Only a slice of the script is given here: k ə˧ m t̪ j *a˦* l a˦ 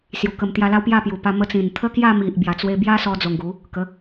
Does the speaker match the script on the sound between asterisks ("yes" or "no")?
yes